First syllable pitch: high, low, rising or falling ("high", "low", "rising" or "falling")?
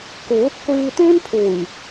rising